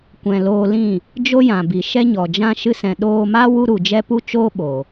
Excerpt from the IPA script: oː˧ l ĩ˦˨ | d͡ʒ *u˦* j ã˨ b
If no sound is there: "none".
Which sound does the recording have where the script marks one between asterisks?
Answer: o˦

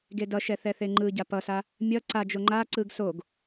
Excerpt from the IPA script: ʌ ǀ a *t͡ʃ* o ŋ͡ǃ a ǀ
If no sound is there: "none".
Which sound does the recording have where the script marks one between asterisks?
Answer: d͡ʒ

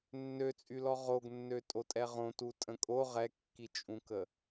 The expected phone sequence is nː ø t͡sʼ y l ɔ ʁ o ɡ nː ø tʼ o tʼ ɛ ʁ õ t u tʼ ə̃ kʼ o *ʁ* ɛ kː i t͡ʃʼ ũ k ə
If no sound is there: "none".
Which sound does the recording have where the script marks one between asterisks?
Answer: ʁ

